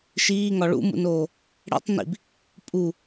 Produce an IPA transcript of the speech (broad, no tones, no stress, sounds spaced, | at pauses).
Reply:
ʃ iː ŋ ɒ ɭ ṵ m ṵ n oː | ɽ ḛ tˤ n ḭ b | pʼ u